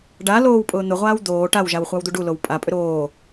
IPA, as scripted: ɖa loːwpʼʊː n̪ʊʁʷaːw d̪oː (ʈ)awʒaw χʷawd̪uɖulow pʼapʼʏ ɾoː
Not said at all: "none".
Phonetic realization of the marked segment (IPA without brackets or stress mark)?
ʈ